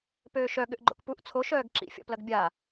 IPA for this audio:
p øː ʃ œ ɠ ʏ ʔ ɡ͡ǃ o̰ k p u ʔ t͡sʰ o ʃ œː ɡ ǁ ḭ fʲ ɔ̰ p l ɐ ɡ bʲ a

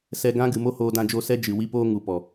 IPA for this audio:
s ɛ˧ ɡ ã˦ ɡ ɨ˨ m o˦ h oː˧ d ã˧ d͡ʒ o˧ s ɛ˦ d͡ʒ ɨ˨ w i˧ p oː˧ ŋ u˨ p ɔ˨

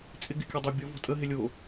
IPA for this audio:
t͡sʼ ɪ ɡ ɪ kʲ ɔ dˤ o bʲ ɔ v ɔ̤ tʼ ə ɦ ɪ lʲ o

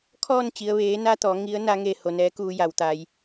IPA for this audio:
kʰ ɔː˥˨ n t͡ɕ i˩ ə̯ ʋ eː˩˧ n a˧ t̪ ɔː˩˧ ŋ i˧˥ ə̯ n a˧˥ ŋ eː˧ h o˩ n ɛː˧˥ k uː˧ j a˩ w t̪ a˩ j

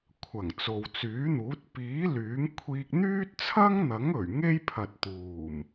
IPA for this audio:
kʷʰ ɐ˨˩ ŋ t͡s o˨ w t͡s yː˨˥ n̪ uː˨˥ t̚ p iː˨˥ l yː˨˥ ŋ kʷʰ iː˧ k̚ n̪ yː˥ t̚ t͡sʰ ɐ˥ ŋ n̪ ɐ˨˥ ŋ ɵ˨˩ ɥ ŋ e˥ j pʰ ɐ˨ t̚ t̪ uː˨˩ m

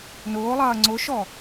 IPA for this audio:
n ʊː lˠ ɐː ŋ͡ǀ ʊ ʃ ɔ

